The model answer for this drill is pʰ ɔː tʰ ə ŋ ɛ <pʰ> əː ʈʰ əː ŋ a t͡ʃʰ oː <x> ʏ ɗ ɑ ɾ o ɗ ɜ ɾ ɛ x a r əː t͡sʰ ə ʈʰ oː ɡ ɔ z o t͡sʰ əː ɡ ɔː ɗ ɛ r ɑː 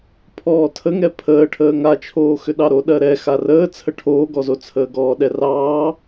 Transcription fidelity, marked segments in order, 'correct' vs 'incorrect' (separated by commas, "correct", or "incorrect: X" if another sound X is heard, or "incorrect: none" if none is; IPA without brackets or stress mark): correct, correct